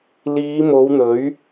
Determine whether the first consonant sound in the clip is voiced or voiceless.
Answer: voiced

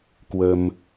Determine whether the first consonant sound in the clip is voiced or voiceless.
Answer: voiceless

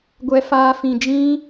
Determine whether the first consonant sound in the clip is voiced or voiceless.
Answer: voiced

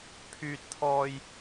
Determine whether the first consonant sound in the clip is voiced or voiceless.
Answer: voiceless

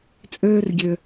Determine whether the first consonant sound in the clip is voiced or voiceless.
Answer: voiceless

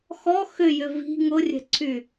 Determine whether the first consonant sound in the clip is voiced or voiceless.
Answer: voiceless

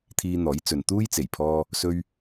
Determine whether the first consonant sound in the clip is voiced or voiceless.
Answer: voiceless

